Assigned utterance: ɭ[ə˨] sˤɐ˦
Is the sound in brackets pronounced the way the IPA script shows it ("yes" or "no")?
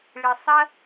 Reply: no